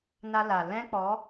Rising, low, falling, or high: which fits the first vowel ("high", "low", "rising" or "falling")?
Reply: high